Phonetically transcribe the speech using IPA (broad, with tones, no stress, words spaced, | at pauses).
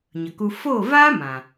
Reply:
ɲə˨ku˧ fo˦˨vaː˦ mã˨